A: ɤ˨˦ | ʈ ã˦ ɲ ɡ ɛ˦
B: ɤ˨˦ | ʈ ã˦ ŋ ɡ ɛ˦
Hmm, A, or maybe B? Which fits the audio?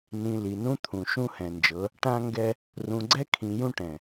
B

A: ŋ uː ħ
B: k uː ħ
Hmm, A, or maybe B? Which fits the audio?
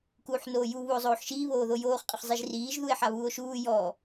B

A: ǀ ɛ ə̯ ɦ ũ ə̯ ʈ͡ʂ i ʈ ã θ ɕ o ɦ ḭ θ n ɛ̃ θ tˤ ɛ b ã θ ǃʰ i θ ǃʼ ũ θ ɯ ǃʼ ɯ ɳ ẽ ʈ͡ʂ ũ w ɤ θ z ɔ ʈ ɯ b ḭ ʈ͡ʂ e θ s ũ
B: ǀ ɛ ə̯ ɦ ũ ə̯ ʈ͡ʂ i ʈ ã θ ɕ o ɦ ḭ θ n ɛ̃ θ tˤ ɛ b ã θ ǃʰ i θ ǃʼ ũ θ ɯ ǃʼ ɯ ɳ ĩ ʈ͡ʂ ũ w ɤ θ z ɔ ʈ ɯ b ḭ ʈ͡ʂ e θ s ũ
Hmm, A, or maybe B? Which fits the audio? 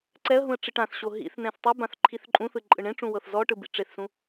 A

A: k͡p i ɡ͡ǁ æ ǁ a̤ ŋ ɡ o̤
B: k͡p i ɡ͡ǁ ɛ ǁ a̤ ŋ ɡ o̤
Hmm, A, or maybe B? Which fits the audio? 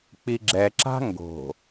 B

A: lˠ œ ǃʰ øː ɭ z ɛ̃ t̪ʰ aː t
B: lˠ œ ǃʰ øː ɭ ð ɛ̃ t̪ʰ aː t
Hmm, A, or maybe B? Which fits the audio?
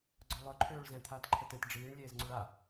A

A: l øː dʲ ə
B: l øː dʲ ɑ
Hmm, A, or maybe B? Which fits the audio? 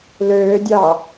B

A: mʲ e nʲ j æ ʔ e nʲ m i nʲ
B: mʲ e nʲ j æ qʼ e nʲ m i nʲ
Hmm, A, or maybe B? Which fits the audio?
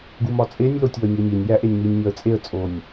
A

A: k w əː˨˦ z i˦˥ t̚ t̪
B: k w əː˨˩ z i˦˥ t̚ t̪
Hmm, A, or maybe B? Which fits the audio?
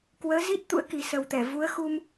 A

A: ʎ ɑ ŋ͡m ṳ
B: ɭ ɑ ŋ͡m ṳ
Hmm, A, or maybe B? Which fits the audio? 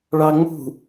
B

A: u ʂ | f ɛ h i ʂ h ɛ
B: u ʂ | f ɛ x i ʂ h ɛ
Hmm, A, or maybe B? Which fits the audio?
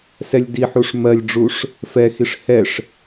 B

